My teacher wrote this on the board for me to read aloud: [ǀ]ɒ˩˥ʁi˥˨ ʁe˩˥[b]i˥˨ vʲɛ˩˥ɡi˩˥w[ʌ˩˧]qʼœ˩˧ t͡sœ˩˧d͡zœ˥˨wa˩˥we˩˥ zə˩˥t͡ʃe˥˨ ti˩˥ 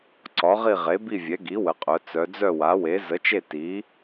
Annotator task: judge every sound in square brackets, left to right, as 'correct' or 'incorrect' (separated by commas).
correct, correct, incorrect